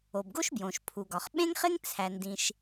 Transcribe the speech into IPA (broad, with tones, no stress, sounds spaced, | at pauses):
o˩ b ɡ o˥ ʃ b j õ˩ ʃ pʰ u˩ ɡ ɒ˩ χ ɓ ẽ˥ ŋ χ e˥ ŋ t͡sʰ æ˩ n d ĩ˩ ʃ